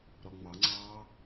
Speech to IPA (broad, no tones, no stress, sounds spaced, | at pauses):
ɾ ɔ ŋ͡m ɑ ŋ͡ǀ ɑː